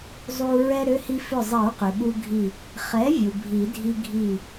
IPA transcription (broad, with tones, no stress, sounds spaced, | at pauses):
zˤ u˧ ɹ ɛ˧ ɾ ʏ˩˧˩ h i˧ f ʏ˧˩ zˤ i˨˩˦ ɹ q ʏ˩ ɓ u˧ ɡʱ i˧˩ | χ ɛ˩˥ vʲ u˩ bʱ i˨˩˦ dʱ i˧ ɡʱ i˧˩